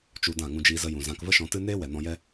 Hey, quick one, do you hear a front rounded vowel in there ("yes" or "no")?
no